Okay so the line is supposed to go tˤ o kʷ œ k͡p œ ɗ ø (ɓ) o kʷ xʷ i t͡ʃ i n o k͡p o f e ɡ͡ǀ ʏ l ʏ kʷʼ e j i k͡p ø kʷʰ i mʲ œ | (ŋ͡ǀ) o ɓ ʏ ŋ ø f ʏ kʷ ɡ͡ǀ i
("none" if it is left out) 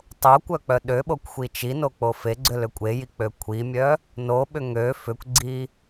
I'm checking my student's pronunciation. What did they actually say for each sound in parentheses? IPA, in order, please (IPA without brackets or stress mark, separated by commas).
ɓ, n